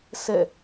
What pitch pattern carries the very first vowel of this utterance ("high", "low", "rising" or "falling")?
falling